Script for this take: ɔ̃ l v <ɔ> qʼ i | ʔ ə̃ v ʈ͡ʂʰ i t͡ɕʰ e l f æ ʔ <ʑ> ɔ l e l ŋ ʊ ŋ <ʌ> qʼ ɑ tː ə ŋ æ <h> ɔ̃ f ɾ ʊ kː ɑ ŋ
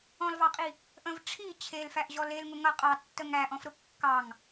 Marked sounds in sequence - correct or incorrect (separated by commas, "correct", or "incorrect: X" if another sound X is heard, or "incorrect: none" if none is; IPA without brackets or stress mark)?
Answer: incorrect: ɑ, correct, correct, incorrect: ʔ